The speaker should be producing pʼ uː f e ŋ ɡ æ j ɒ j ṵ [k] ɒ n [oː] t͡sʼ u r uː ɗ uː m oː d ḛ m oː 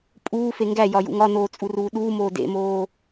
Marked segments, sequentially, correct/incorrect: incorrect: ŋ, correct

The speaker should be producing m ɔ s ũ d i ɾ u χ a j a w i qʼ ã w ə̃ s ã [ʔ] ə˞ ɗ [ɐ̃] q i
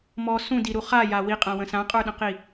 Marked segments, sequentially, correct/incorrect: incorrect: qʼ, incorrect: ə̃

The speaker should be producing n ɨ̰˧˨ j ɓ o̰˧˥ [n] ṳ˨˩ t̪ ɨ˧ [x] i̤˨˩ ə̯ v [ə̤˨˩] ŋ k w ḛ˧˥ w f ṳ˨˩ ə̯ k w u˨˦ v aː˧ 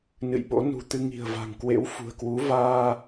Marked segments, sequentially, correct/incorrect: correct, incorrect: ŋ, incorrect: a̤˨˩

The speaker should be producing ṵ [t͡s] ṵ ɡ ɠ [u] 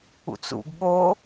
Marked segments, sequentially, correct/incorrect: correct, incorrect: o

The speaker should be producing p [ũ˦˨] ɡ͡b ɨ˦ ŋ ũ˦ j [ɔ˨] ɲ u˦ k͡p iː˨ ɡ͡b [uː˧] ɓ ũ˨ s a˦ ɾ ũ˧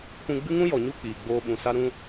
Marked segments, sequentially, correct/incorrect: incorrect: ũ˧, correct, incorrect: oː˧

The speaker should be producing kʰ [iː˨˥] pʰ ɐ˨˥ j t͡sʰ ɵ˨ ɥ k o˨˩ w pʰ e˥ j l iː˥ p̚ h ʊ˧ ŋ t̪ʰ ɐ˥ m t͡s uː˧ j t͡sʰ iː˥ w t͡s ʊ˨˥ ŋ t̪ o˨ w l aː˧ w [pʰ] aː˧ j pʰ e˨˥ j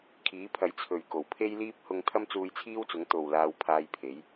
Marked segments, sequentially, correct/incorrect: correct, correct

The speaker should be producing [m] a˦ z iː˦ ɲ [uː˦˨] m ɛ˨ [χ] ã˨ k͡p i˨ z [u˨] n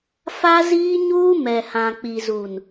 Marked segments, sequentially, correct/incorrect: incorrect: f, incorrect: uː˦, incorrect: h, correct

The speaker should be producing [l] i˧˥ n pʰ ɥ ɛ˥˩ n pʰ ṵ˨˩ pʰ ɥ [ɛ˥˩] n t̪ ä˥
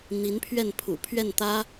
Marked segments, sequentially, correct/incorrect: incorrect: n̪, correct

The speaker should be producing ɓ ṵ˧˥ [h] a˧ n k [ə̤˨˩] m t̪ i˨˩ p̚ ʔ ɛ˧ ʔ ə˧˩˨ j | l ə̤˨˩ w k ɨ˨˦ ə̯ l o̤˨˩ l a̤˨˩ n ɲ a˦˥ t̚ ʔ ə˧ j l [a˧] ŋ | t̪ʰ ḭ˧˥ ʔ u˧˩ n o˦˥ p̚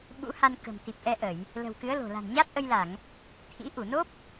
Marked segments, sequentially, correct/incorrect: correct, correct, incorrect: a˧˩˨

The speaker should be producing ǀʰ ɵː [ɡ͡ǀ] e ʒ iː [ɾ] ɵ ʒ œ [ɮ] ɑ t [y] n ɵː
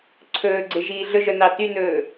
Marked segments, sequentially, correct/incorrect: correct, incorrect: ɮ, incorrect: n, correct

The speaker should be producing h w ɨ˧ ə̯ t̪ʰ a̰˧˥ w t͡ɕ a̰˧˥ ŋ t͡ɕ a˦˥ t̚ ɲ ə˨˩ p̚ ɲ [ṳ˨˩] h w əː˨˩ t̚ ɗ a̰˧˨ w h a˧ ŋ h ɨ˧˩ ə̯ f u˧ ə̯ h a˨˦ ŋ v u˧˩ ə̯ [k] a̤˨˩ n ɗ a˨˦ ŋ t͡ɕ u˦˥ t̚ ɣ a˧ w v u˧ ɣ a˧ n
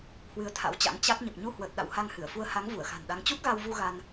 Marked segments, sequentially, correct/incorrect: incorrect: u˧, incorrect: x

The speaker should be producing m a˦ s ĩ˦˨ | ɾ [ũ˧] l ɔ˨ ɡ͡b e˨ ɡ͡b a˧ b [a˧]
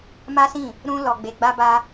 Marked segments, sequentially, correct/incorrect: correct, correct

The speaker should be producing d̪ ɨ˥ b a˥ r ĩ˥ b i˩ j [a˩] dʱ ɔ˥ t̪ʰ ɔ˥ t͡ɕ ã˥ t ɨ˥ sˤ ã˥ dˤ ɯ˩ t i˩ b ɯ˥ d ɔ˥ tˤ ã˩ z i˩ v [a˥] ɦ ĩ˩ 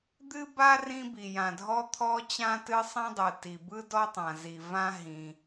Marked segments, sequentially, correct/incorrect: incorrect: ã˩, incorrect: ã˥

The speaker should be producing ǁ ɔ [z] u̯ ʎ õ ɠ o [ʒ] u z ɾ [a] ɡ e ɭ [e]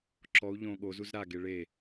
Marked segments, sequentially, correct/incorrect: incorrect: none, incorrect: z, correct, correct

